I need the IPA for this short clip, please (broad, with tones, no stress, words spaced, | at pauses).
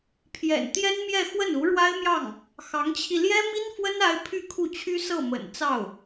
pʰjɛ̰˨˩nt̪jɛ˥n mjɛ˥˧xwə˥˩n u˧˥ɻwa˥ɪ̯mjɑ˥˩ŋ | xɑ˧˥ŋt͡ɕʰi˧ ljɛ˥mi˥nfwə˥n a˥ɪ̯ pʰy˥˧kʰu˥˩t͡ɕʰy˥ sɤ˥˩mə̰˨˩n t͡sɑ˥˩ʊ̯